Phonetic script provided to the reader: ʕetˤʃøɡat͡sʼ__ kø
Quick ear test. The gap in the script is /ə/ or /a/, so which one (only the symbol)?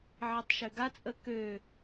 ə